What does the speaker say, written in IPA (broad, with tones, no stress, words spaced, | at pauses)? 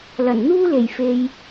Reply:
lɐ˨˩nn̪uː˥le˨˩j fe˨j